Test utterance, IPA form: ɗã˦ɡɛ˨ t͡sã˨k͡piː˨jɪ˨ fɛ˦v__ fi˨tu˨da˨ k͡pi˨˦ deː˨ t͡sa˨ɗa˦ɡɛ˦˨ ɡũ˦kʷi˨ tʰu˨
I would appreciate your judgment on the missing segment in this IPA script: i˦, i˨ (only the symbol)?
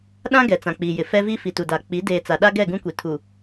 i˦